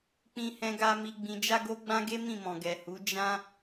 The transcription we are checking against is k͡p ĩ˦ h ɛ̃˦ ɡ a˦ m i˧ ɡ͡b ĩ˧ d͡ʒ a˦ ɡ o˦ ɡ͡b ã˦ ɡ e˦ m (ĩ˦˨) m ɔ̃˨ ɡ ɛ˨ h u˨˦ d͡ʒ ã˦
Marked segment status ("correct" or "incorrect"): correct